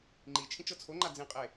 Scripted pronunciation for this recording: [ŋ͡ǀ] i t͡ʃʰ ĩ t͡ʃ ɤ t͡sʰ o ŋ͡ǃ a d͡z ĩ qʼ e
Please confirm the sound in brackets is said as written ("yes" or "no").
no